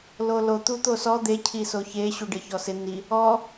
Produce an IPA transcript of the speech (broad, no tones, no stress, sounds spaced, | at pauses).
l o l o t̪ u t̪ o s ɔ d̪ e cʰ i s o ç e ɕ u ɖ ɪ ç ɔ s ɪ n i | ɔ